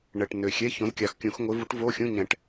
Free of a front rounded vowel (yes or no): no